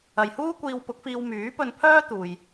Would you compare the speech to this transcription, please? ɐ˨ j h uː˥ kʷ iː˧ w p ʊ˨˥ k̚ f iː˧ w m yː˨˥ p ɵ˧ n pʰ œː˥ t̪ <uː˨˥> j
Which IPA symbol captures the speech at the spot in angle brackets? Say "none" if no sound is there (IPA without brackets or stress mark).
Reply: uː˧